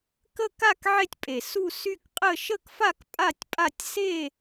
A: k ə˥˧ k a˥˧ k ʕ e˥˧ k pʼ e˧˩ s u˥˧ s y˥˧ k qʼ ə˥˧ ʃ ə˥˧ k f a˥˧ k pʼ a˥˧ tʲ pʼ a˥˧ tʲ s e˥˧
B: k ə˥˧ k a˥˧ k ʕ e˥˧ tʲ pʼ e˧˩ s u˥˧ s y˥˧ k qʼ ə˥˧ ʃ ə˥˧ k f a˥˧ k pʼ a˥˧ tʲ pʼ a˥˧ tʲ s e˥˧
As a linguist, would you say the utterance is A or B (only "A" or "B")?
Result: B